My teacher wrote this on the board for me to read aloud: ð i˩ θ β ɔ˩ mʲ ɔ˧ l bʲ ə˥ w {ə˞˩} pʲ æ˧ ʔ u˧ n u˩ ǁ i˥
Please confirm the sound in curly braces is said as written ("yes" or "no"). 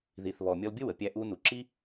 no